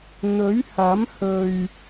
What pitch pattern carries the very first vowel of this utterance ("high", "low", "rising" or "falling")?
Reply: rising